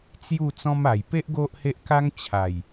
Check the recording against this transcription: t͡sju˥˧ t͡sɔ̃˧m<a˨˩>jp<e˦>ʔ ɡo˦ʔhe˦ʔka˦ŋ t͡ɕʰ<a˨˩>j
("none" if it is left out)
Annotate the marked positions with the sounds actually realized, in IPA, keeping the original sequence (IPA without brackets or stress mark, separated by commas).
a˨˩, e˦, a˨˩